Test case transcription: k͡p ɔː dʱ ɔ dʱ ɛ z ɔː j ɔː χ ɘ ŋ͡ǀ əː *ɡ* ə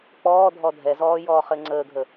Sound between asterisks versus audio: incorrect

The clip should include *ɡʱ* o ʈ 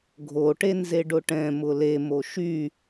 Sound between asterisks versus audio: correct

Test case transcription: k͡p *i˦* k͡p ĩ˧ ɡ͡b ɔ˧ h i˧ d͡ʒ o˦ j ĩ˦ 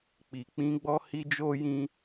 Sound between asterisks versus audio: incorrect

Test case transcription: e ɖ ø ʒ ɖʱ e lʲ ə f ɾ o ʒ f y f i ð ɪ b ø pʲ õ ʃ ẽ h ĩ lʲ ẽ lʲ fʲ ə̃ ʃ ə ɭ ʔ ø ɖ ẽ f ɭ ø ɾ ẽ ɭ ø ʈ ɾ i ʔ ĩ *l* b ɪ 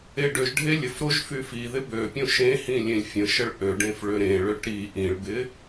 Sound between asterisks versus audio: incorrect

